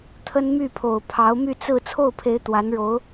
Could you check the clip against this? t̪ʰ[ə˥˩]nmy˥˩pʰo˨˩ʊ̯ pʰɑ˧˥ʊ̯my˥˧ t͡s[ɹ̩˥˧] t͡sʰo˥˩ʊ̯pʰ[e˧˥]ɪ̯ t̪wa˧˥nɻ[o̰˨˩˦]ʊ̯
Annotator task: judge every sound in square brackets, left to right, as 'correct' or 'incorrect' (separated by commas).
incorrect, correct, correct, incorrect